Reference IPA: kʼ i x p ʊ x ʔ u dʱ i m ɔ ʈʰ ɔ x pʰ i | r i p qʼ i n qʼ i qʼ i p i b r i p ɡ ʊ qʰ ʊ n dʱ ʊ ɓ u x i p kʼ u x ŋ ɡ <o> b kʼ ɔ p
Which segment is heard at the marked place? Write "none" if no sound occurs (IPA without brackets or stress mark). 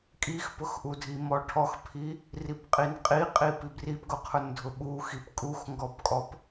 ɔ